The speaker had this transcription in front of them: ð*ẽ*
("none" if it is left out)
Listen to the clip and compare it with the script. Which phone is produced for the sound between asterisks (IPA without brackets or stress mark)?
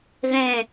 ẽ